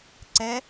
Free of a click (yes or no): no